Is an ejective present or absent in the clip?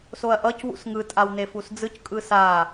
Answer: present